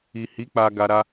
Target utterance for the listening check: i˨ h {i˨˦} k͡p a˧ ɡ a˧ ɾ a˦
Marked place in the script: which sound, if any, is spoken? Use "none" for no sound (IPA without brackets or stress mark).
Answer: i˨˦